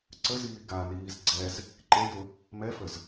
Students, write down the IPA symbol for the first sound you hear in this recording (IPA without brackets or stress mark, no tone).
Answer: ǀ